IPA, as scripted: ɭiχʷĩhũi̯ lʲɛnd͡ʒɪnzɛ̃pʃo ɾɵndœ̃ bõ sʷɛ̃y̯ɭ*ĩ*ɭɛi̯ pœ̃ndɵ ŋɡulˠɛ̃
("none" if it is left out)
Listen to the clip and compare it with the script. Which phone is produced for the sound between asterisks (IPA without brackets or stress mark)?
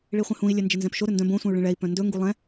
ĩ